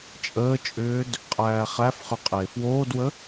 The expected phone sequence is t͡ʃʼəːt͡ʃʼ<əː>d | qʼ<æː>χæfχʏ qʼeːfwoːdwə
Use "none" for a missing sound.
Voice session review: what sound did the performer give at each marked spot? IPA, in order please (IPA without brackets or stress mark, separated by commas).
ʏː, æː